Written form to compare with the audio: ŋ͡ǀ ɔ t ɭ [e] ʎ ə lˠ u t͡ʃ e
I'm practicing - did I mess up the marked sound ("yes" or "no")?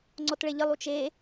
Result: no